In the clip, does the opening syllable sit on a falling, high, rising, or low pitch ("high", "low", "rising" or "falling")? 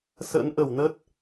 rising